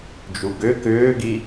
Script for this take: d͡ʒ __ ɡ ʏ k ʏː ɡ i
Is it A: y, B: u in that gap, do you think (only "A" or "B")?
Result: B